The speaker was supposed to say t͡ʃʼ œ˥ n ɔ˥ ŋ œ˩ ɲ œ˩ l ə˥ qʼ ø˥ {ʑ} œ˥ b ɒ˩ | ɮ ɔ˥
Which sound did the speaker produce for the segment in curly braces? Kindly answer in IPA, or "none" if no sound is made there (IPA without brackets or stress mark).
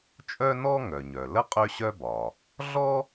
ɕ